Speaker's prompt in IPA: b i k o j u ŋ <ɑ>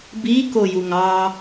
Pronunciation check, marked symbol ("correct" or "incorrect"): correct